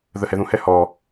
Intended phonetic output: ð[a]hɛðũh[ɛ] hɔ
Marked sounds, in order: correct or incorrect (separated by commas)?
incorrect, correct